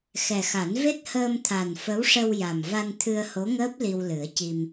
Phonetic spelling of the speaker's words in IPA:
xɛ˨˩xa˨˩˦n ve˦˥t̚həː˧mt̪ʰa˨˩n fə˧˥wʂə˧w ja˨˩m va˧nt̪ʰɨ˧ə̯ho˧˥ŋəː˦˥p̚ li˧wlɨ˨˩˦ə̯ci˧m

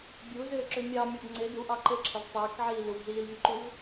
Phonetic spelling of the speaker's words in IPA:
bʲuzʏːǁʏ mʲɑmʲɔb ŋ͡ǀe duʔɑ ǃɘǁʰəv tˤɘːkʕiː luvziːlvʲuǃuv

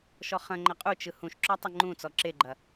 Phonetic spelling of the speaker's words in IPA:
ʃɔχɐ̃ŋ͡ǃɐ qʼut͡ʃɯ hũʃǁɔ tˤɐŋ͡ǃũt͡sɔ ǁeɡ͡ǃɐ

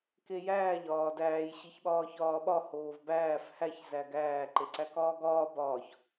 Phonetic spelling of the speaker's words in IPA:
kejæːʎ ɒːdæːj ɕiçɓɒːçɒːɓɒ hoːvbæːf hæç zæɡæː ǃeǀækɒːɡɒː bɒːç

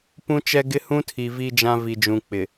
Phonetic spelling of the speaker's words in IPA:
pũ˦t͡ʃɛ˦ɡɪ˦ hũ˦tʰi˨ vi˦d͡ʒã˦ vi˨d͡ʒũ˨ k͡pɪ˨

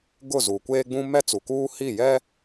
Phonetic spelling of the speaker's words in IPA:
ɡʊ˦˨zu˨ kʷeː˦ɡ͡bũ˦ mɛ˦t͡su˨kuː˦ hi˦˨jɛ˦

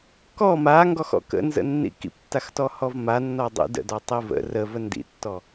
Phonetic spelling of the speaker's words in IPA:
kɔ maŋɡɔxɔ̰ kə̰nzə̰nːḭ kḭptːaxtɔhɔv manːɔ dˤḭ də̰dɔtˤi və̰ rəvə ndḭtːɔ

